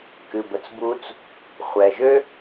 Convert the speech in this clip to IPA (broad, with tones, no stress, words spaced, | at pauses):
kɨ˩bə˩t͡s bu˧t͡s | χʷɛ˩ʒø˥